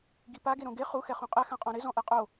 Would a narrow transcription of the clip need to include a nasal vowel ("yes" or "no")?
yes